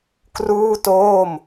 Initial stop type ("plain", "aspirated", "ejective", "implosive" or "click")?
plain